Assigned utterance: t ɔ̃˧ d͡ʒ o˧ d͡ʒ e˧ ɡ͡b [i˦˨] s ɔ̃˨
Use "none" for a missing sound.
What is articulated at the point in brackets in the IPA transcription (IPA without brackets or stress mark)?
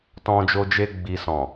i˨